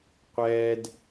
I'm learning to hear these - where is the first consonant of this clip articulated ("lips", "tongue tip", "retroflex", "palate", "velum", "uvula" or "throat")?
uvula